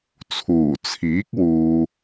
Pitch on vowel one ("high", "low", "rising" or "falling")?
low